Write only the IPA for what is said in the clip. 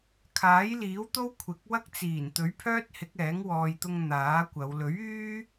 kʰ aː˨˥ j l iː˨˥ w t̪ o˥ w kʷʰ ɪ˨˥ k̚ w ɐ˥ k̚ t͡s iː˨˩ n t̪ ɵ˨˥ ɥ pʰ œː˥ t̚ h ɪ˨˥ k̚ ɛː˨˥ ŋ w ɔː˨ j t̪ ʊ˧ ŋ n̪ aː˨˥ kʷ ɐ˨˧ w l ɵ˨˥ ɥ yː˥

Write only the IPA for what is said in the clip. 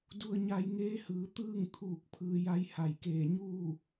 d u˧ ə̯ ɲ a˧ j ŋ eː˧˥ h ɯː˩ t̪ ɯː˥˨ ŋ t̪ʰ uː˧˩ k̚ pʰ ɯː˧ j a˧˥ j h a˧˩ j k eː˧˩ ɲ uː˥˨

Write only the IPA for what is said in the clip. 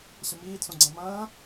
ɕ ə m iː d s õ ɡ͡ǀ ɐ̃ m ɐ̃ː

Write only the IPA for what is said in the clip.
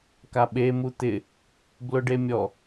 k a ɓ e m u t̪ ɪ | b l ʊ ɖ e mʲ ɔ

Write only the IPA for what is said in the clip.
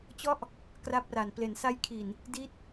t͡ɕ ɔ˥˩ ʔ | k r a˦˥ p̚ r a˨˩ n p l e˩˦ n s a˦˥ j kʰ i˨˩ n | d i˦˥ t̚

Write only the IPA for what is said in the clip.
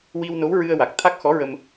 w i˧ w n o˧˥ w ɹ ɨ˧ ə̯ w a˨˩ k̚ t̪ʰ a˦˥ k̚ x ɔ˧˥ ɹ ə˧ m

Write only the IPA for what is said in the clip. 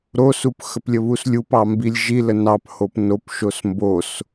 ɾ o s u p x ə p lʲ ə β u s lʲ u p ɑ m b i lʲ ʒ i l ə n ɑ p h o p n o p ʃ o s m b o s

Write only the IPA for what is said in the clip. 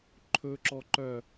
ǃʰ ɵ ǁ ɔ ǃ œ

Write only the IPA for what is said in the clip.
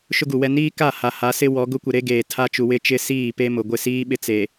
ʃ ʊ˦ ɡ u˨ w ɛ˦ n iː˦ k a˦˨ h a˨ h a˨˦ s ɪ˦ w ɔ˨˦ ɡ ʊ˦ kʷ ɪ˨ ɾ e˦ ɡ eː˨ tʰ a˦ t͡ʃ u˨ w ɪ˦ t͡ʃ ɪ˦ s iː˦˨ p e˦ m ʊ˨ ɡʷ ɪ˦˨ s iː˦ ɓ ɪ˦˨ t͡s e˨

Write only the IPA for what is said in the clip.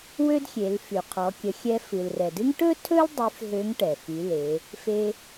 w ø˥ d xʲ e˩˧ l f y˩ qʰ ɔ˩˧ kʲ ə˩˧ xʲ ɛ˧ f ɨ˩ l r ɛ˩ d ɨ˥ ŋ ʈ ɵ˥ tʰ ɵ˥ l dˤ y˧˥ f ɦ ø˧˥ ŋ ʈ ɛ˩ f y˩˧ l e˩˧ | f e˧

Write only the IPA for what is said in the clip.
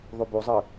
ðˤ u b u zˤ ɨ

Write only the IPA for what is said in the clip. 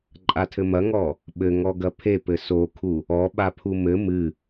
ǃʼ a tʰ ɘ m ɐ ŋ ɔ | ɓ ɘ ŋ ɔ ɡ ɐ pʰ e p ɘ s o kʰ u | ɔ ɓ a pʰ u m ɘ m ɨ

